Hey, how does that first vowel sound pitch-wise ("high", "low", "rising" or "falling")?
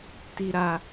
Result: high